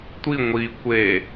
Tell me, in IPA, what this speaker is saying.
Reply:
tʷi ŋʷi kʷe

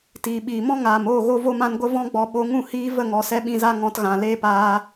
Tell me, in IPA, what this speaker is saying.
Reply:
tiː˨ɓiː˨mɔ̃˦ ŋaː˨moː˦˨ ɣo˦vo˦mã˦n ɡʷə˦vɔ̃˦ɡ͡bɔ˧ ɓo˧ ŋũ˦˨hiː˧ və˦˨ŋɔ˨sɛ˧ ɓĩ˧za˦ ŋɔ̃˧tɣã˨ leː˦paː˧

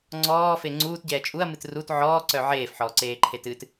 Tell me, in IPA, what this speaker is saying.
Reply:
ŋ͡ǀɔːfe ŋ͡ǀuːtɟɛː t͡ʃʼuɐ̯mɨt rut ʕɔːǀœ ʕeːfħɔːǀeːǃʰet ɨt

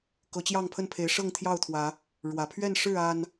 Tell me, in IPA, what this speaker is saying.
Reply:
kɤ˨˦t͡ɕjɑ˥˨ŋpʰə˥˨npʰe˨˦ɪ̯ ʂɤ˥˨ŋt̪ʰjɑ˥˨ʊ̯t̪ʰwä˨˦ | ɻwä˨˩pʰɥɛ˥˨n ʂɻ̩˥˨a˨˩n

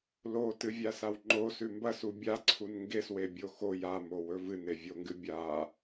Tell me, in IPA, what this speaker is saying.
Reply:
lotɨvʲasaw ŋ͡ǃosʉ mbɐsu bʲaǀʰun ŋɡeswebʲo xo jamowɵ vɨnevʲoŋɡɨ bʲa

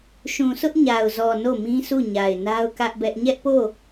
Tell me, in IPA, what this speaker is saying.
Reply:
ʃũ˨sʊ˦ʔɲa˨ʊ̯zɔ˨ no˦˨mĩ˦sʰu˦˨ ɲa˨ɪ̯na˦ʊ̯kä˦ʔbɛ˦ʔ ɲɛ˦ʔpo˦˨

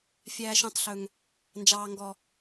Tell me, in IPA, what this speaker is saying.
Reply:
fʲæː˦ʃũ˦tˤɬɵ˦ŋ | nd͡ʒɑː˦ŋɡɔ˦

